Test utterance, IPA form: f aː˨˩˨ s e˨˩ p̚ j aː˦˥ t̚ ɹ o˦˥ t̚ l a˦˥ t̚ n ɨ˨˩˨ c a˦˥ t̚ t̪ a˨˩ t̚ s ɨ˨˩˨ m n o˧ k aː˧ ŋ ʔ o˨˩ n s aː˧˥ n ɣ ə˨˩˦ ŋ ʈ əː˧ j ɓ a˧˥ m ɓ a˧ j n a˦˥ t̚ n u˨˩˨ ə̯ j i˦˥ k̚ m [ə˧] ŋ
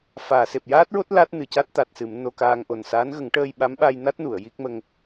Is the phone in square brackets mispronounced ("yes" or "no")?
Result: no